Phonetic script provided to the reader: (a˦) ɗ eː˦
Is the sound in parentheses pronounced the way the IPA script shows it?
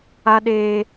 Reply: yes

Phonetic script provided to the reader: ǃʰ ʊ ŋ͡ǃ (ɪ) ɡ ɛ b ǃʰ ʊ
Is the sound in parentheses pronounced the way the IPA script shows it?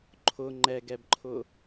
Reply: no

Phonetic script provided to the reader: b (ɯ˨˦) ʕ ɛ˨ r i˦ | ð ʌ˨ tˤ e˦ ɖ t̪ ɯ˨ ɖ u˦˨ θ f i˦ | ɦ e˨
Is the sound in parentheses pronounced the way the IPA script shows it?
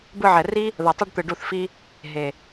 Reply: no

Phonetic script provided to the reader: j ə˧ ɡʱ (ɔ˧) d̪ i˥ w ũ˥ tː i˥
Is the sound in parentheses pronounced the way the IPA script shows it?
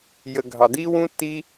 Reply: no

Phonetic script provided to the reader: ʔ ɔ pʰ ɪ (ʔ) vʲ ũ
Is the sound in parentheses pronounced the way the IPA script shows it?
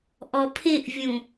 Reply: yes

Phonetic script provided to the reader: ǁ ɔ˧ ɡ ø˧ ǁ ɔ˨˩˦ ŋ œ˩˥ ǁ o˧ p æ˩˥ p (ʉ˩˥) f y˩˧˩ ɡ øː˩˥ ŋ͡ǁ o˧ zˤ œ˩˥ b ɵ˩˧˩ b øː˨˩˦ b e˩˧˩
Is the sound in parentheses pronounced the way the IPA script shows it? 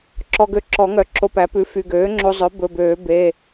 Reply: yes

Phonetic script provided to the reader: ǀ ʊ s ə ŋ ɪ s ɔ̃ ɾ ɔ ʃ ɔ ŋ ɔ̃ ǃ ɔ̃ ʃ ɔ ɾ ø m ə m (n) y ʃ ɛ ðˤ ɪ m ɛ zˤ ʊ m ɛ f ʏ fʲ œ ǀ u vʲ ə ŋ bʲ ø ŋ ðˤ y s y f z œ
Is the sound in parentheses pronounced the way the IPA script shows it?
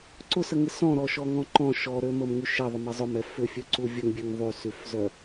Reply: no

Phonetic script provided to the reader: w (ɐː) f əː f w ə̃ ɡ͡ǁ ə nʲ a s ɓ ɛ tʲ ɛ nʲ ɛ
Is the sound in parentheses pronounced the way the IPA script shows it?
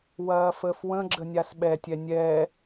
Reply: yes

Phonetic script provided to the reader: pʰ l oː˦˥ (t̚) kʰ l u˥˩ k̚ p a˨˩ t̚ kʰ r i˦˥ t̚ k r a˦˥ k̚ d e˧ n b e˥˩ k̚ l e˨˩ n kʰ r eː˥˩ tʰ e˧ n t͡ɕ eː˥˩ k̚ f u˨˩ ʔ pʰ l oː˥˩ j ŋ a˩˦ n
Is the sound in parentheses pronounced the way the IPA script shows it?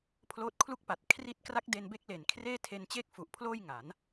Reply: yes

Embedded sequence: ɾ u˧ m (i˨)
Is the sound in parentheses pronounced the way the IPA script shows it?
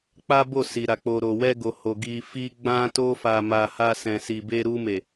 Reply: no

